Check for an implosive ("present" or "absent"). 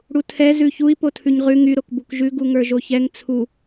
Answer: absent